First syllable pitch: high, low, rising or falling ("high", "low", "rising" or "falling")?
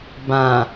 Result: low